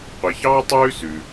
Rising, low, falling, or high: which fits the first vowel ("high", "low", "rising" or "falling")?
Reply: low